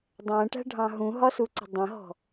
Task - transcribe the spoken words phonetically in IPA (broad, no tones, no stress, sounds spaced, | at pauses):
dˤ æ̃ ʈ æ̤ ɖʱ ɑ̃ ɦ ũ ɦ ɒ s u ǀ ə̤ dˤ ə̃ ɦ ɔ̤